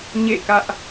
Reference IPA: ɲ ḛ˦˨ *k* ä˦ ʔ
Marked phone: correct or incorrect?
correct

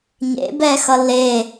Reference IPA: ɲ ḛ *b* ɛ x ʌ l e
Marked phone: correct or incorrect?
correct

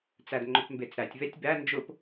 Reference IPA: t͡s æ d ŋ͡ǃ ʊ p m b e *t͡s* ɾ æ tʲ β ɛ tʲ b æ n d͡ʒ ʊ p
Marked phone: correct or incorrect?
correct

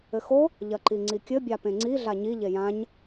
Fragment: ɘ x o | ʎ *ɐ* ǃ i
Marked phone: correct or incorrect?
correct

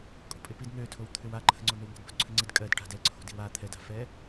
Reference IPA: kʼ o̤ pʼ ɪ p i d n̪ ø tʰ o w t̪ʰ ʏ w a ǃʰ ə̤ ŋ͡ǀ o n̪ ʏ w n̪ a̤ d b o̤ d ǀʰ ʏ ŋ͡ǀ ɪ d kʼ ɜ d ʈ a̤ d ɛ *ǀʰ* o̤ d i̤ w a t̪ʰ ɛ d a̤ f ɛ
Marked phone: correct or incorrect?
correct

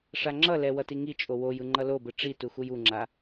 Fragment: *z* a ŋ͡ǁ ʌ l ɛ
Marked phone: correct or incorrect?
incorrect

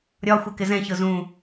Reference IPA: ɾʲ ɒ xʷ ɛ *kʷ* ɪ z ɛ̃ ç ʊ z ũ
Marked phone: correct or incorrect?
incorrect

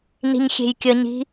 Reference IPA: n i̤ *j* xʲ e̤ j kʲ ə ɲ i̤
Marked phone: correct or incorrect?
incorrect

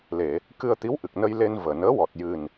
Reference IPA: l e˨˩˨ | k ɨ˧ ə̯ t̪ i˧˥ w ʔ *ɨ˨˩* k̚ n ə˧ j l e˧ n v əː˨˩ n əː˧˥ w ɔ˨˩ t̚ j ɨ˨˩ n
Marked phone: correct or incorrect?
correct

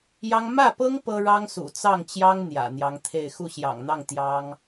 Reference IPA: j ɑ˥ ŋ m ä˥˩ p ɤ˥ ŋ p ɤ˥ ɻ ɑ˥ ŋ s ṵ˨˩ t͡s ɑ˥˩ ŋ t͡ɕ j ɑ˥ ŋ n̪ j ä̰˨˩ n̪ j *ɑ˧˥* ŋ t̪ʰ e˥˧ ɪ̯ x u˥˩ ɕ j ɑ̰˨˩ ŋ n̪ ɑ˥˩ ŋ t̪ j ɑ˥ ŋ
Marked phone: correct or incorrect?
correct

